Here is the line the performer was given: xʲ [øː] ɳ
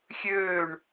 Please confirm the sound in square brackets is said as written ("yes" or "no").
yes